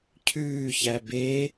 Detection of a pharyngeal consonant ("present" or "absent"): absent